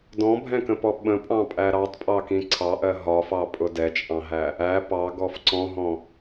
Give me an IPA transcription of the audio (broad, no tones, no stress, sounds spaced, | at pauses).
d ɔ̃ bʱ ɛ̃ k ə̃ p ɔ ɓ ə̃ pʼ ɑ̃ pʼ æ ɾ ɑ tˤ pʼ ɑ k ĩ ǀʰ ɑ ʔ ɜ ɦ ɒ f ɑ pʼ ʊ d ɛ t͡ʃʼ ɑ̃ ɦ æ | æ p ɑ ɡ ɔ f ǀ ɔ̃ ɦ ɔ̃